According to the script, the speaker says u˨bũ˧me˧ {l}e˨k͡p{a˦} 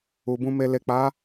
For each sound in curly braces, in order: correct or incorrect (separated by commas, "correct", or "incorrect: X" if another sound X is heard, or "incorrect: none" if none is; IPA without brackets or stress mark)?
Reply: correct, incorrect: a˨˦